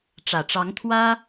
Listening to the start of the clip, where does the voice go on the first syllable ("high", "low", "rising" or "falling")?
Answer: low